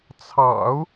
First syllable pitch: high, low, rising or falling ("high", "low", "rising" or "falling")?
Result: low